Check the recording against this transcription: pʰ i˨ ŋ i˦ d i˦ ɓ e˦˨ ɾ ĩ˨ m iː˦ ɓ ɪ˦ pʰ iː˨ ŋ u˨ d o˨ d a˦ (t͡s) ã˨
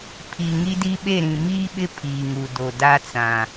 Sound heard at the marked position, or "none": t͡s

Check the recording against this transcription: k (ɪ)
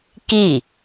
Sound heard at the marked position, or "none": i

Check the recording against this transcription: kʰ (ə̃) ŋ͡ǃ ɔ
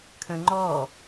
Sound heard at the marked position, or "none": ə̃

